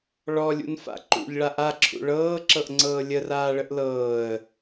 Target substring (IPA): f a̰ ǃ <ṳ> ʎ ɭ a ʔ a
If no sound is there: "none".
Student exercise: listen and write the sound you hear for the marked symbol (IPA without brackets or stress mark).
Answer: ṵ